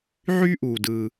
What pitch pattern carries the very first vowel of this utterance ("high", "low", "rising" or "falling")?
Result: high